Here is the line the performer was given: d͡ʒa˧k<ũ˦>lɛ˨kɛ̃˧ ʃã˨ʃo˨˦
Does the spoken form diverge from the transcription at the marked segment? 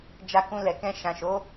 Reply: yes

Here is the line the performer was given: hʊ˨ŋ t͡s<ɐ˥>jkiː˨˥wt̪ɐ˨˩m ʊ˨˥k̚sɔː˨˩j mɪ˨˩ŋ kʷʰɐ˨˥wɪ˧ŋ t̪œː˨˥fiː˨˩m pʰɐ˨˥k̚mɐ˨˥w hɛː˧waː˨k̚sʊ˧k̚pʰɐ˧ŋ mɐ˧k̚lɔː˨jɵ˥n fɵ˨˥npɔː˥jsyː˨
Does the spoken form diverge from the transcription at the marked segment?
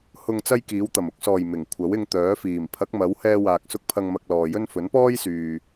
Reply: no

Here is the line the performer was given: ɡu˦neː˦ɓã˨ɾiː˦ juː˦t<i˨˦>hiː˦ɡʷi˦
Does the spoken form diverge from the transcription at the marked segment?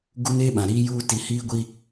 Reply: no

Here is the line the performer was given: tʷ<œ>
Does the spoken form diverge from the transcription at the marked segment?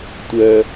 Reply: no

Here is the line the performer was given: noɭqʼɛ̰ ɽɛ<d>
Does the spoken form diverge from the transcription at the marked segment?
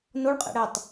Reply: yes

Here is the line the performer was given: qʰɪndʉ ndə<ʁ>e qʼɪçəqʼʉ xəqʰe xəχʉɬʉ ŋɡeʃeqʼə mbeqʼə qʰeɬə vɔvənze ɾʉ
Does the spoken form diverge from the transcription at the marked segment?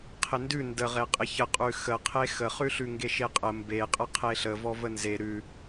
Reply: no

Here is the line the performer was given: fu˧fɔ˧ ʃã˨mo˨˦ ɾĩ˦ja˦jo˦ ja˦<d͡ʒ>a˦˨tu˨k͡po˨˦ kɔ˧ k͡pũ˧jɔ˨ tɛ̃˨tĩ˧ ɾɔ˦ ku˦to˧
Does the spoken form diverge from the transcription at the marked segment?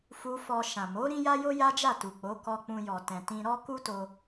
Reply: no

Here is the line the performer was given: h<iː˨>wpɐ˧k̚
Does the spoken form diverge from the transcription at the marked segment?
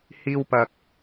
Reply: yes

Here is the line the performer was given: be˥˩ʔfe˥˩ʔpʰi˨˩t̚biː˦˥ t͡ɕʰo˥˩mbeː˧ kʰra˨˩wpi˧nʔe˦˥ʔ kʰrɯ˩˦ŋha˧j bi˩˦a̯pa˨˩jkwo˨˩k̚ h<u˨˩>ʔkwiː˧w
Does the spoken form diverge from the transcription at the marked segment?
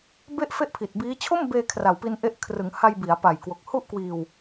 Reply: yes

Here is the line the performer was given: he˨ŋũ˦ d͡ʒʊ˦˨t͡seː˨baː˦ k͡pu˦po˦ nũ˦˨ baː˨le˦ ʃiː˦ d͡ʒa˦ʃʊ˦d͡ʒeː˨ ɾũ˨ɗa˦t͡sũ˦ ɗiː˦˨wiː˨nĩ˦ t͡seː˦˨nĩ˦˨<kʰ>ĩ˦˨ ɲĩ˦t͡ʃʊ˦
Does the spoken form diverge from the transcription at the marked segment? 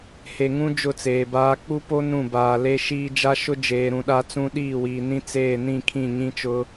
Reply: no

